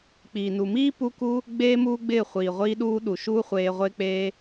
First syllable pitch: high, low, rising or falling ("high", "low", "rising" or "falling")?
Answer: low